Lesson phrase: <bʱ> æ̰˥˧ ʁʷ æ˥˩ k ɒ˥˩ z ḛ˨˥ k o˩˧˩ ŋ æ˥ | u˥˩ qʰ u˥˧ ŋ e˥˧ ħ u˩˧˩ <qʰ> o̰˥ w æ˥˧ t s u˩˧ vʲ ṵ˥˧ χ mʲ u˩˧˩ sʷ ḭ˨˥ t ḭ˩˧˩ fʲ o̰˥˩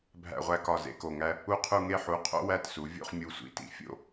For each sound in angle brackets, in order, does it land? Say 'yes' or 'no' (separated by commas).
yes, yes